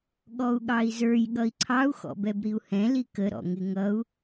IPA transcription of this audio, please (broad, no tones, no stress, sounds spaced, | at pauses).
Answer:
ɠ ɔ u̯ ɠ ɑ i̯ z ə˞ j ɠ ʌ i̯ ǀʰ ɑ u̯ x ɔ̰ b ɛ b ɾ i u̯ h ɛ̃ l i k ə ɾ ɔ̰ ŋ ɪ ŋ ʌ u̯